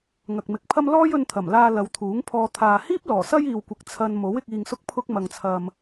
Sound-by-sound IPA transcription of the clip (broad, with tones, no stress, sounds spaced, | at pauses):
ŋ ɐ˨ k̚ m ɪ˨˥ k̚ pʰ ɐ˥ m l ɔː˥ j ɵ˧ n t̪ʰ ɐ˨˩ m l aː˧ l ɐ˨˧ w t̪ʰ uː˨˥ ŋ pʰ ɔː˧ t̪ʰ aː˨ h iː˥ p̚ l ɔː˨˩ s ɐ˥ j iː˨ w kʷ ɪ˨ k̚ t͡sʰ ɐ˧ n m o˨˥ w ɪ˧ k̚ iː˨ ŋ s ʊ˧ k̚ pʰ ʊ˧ k̚ m ɐ˨ ŋ t͡sʰ ɐ˨ m